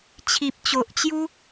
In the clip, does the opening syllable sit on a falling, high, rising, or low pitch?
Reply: low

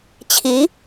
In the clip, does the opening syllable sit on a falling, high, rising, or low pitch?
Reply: rising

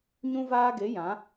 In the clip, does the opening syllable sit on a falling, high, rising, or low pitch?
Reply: high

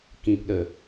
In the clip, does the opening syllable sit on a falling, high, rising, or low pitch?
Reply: low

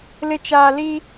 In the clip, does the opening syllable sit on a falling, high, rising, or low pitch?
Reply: low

